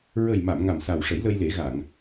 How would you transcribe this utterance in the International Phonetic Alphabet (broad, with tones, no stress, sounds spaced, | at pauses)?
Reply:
ɹ ə˨˩ j m a˨˩˨ m ŋ a˨˩ m s a˨˩ w ʂ ə˨˩˦ j l ə˧ j l e˨˩˦ ɣ a˨˩˨ ŋ